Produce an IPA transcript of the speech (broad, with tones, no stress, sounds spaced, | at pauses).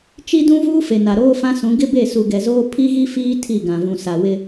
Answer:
t͡ʃ i˦ d ũ˦ v uː˦ f e˨ n a˨ ɾ oː˦ f ã˦ s ũ˨˦ ɡ ɪ˦ b e˦˨ s u˨ ɡ ɛ˨ z oː˦ pʰ i˦ ɣ i˦ f iː˦ tʰ i˦˨ ɡ ã˨ v ũ˨ s a˨ w ɪ˦